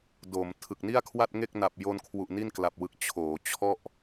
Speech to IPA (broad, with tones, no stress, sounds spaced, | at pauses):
d oː˩˦ m tʰ ɯ˨˩ k̚ n i˥˩ a̯ kʰ w a˥˩ t̚ ŋ e˥˩ k̚ n a˨˩ p̚ j o˧ n kʰ w u˨˩ ʔ n i˥˩ n k l a˨˩ p̚ w ɯ˨˩ k̚ t͡ɕʰ oː˩˦ t͡ɕʰ ɔ˥˩ ʔ